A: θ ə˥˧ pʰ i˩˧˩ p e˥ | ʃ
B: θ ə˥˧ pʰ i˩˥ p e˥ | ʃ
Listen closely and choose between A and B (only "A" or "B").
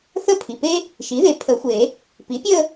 A